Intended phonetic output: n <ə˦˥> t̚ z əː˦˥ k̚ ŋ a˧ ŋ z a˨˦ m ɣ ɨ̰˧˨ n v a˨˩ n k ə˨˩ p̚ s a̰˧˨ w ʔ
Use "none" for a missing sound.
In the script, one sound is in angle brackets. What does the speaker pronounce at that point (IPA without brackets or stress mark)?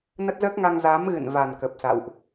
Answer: ə˦˥